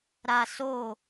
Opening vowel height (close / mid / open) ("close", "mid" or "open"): open